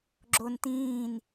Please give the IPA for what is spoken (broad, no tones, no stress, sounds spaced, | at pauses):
ɡ͡ǁ o n t ĩː n